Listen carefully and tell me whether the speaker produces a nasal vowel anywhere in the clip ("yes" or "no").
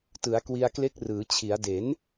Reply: no